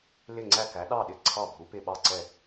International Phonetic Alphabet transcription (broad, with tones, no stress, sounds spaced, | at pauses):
l ɪ˧˩ ŋ͡ǀ æ˧˩ k æ˩˧ ɗ ɑ˧˩ ɗ ɪ˧˩ ǀʰ ɑ˧˩ bʱ u˩˧ p ɪ˧˩ ɓ ɑ˧˩ ǀ ɛ˧˩